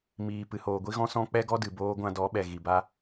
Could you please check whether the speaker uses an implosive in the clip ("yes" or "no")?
yes